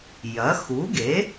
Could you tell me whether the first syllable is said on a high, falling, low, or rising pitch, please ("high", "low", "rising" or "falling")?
rising